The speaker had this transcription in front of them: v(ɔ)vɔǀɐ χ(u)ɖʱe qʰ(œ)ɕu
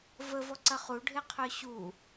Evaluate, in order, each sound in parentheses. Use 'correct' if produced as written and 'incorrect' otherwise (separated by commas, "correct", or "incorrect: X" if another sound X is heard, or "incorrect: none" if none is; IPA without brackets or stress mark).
incorrect: ə, correct, correct